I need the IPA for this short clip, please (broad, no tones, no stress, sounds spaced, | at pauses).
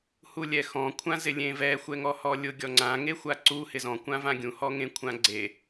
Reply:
h u lʲ ɛ x ɔ̃ kʷʰ ã z ɪ lʲ ẽ v ɛ xʷ ɛ ŋ ɔ h ɔ lʲ ʊ ɡʲ ɔ ŋ͡ǀ ã ŋ e xʷ a ǀ u h ɪ z ɔ̃ kʷ ã v ã ɡʲ ũ h ɔ ŋ ẽ kʷʰ ã ɡ͡ǀ e